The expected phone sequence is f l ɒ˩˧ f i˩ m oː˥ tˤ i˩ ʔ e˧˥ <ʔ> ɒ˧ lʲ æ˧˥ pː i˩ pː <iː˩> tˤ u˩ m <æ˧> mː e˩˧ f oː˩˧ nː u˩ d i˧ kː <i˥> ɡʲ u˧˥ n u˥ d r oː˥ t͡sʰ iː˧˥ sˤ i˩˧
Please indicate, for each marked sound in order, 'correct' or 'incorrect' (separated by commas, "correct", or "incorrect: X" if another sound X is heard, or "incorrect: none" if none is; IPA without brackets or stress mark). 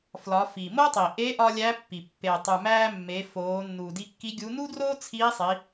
correct, incorrect: eː˩, incorrect: æː˧, incorrect: i˧˥